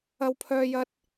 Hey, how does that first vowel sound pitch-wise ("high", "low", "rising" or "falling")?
high